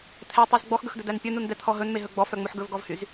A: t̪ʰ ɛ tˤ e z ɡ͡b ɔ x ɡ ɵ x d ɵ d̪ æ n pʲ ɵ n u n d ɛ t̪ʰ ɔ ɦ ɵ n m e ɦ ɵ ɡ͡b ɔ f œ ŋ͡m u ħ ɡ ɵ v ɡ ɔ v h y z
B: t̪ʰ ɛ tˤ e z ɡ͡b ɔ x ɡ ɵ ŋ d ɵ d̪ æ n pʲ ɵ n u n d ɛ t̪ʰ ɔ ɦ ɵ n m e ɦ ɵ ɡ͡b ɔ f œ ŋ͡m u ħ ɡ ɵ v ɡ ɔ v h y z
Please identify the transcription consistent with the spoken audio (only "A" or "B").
A